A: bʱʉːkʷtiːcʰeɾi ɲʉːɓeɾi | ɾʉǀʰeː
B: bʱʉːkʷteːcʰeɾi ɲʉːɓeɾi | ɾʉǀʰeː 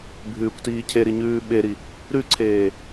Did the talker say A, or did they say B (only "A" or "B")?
A